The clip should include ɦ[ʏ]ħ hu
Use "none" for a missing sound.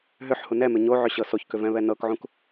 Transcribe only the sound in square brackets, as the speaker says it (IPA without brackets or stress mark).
ʏ